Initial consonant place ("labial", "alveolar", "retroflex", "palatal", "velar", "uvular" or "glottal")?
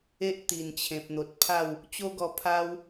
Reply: glottal